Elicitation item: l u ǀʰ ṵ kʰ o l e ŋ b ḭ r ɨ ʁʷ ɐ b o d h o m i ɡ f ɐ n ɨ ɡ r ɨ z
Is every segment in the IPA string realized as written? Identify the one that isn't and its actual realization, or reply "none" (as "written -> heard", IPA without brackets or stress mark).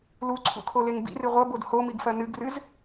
none